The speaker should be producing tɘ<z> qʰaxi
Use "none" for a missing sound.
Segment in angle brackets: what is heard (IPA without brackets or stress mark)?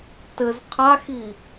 z